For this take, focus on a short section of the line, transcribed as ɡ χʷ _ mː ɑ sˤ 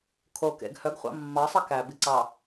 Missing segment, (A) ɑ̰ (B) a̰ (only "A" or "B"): A